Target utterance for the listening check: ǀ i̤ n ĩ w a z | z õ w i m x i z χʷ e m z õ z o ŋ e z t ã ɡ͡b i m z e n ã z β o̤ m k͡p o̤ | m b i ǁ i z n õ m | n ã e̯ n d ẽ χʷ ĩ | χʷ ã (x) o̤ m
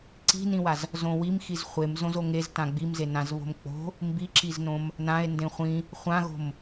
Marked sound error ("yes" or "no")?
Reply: yes